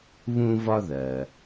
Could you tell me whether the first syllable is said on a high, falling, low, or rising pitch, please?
high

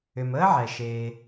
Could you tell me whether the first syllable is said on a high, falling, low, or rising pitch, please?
low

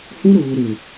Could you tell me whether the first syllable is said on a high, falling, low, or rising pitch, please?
high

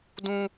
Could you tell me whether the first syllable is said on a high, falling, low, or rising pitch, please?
high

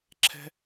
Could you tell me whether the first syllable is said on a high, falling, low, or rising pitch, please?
high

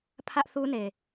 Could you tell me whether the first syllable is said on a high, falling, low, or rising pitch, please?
high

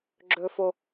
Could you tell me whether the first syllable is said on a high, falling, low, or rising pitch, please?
high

